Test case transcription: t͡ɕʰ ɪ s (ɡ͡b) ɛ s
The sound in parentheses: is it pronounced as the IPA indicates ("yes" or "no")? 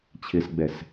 yes